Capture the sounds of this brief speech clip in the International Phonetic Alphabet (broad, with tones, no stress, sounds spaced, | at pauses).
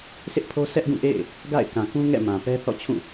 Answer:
sʰ ɪ˦ ʔ pʰ o˦ sʰ ɛ˦ ʔ ɡ ũ˦˨ ʔ ḛ˦˨ ɪ̯ | ɡ a̰˦˨ ɪ̯ k ã˨ k ũ˦ ŋ ɛ̰˦˨ m ã˨ p ɛ˦ θ ɔ̰˦˨ t͡ɕʰ ũ˦˨